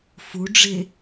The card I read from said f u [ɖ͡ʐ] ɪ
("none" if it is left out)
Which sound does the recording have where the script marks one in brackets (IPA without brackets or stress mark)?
ɖ͡ʐ